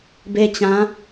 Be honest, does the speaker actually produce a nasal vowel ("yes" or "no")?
yes